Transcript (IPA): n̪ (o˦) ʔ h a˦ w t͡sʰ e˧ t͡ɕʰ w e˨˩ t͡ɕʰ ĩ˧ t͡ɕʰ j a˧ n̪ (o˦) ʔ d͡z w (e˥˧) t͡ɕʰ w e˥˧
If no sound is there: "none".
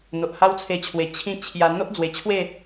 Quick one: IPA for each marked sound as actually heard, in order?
o˨, o˦, e˨˩

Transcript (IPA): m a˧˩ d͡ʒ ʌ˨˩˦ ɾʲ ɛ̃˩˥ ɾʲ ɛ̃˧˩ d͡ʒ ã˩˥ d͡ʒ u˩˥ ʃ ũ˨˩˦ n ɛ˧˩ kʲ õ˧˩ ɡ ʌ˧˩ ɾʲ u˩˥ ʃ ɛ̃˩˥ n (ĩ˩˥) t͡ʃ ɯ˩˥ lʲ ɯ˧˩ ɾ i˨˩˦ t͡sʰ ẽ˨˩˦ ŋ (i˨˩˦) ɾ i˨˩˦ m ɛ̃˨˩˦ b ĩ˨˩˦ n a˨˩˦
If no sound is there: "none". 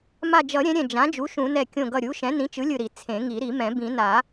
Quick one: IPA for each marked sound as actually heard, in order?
ĩ˩˥, i˨˩˦

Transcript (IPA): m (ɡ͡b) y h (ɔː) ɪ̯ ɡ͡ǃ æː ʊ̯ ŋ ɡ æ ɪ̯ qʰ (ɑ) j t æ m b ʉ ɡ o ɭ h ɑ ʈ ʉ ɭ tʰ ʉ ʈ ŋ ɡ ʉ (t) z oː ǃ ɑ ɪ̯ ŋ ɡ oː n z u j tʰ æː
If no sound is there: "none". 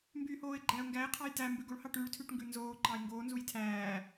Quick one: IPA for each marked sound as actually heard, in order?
b, oː, ɑ, n

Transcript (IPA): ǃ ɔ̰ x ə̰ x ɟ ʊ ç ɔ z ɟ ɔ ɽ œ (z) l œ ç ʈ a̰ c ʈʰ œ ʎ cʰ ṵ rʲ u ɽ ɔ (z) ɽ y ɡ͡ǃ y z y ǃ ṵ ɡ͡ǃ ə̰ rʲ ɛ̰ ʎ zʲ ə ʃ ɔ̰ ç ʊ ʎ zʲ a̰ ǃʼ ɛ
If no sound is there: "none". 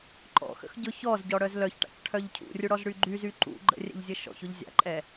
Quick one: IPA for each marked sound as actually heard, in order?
z, z

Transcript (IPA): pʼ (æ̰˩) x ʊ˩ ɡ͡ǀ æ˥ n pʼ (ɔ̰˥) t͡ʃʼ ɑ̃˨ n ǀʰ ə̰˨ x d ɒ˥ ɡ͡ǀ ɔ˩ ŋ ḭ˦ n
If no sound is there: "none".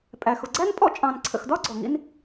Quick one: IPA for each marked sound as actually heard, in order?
æ˩, ɔ̰˥

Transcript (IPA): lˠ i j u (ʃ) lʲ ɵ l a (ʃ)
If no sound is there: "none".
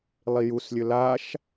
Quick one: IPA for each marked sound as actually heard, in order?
s, ʃ

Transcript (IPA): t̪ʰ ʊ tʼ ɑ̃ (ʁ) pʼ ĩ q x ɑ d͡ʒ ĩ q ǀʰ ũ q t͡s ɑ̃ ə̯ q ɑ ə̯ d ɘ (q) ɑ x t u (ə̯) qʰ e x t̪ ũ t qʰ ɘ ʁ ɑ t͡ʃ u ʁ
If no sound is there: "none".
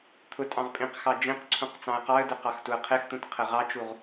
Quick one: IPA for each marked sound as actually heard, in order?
ʁ, q, ə̯

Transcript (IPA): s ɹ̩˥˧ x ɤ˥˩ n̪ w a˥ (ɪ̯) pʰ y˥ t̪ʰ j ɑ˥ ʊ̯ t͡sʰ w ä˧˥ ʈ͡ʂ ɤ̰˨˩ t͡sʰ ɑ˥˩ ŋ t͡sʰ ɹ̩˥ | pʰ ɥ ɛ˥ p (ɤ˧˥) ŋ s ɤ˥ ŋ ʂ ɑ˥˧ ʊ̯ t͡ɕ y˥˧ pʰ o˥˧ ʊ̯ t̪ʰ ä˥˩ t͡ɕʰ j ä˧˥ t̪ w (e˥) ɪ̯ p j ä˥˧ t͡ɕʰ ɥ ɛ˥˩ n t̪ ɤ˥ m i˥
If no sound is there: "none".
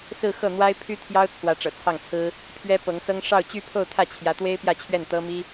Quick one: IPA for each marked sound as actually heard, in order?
ɪ̯, ɤ˧˥, e˥

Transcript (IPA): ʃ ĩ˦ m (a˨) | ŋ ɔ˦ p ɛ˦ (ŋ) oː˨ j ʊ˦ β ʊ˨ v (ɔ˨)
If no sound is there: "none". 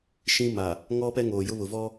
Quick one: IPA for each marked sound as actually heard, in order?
a˨, ŋ, ɔ˦

